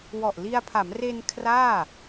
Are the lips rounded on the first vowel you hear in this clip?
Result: yes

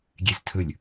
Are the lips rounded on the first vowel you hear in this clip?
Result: no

